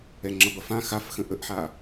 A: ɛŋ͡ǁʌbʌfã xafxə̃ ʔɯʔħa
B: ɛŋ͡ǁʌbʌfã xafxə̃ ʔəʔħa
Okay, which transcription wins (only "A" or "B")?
B